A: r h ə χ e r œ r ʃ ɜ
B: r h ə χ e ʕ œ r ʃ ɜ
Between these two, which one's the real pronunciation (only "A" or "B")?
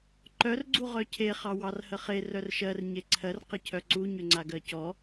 A